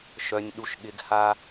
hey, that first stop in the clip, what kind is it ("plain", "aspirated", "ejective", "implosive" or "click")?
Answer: implosive